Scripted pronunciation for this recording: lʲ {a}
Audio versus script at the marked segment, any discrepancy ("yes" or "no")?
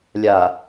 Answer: no